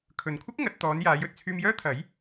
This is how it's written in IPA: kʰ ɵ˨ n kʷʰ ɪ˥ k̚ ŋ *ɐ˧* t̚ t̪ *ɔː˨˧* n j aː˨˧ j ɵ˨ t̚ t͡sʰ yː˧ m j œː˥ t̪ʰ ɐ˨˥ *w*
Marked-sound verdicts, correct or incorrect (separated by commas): incorrect, correct, incorrect